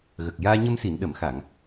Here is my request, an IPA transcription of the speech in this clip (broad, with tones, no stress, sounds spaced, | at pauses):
ɣ ə˨˩ k̚ j aː˧ ɲ ə˧ m s i˨˩˨ n ɗ ə˨˩˨ m x a˨˩˨ ŋ